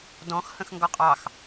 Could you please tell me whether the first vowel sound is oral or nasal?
nasal